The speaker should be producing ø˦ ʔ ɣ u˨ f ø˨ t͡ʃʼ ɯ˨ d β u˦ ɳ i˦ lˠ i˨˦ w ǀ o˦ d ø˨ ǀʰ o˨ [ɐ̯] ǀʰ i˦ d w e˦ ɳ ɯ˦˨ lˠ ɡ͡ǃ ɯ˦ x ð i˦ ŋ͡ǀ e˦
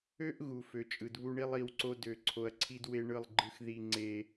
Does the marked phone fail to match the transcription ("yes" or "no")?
no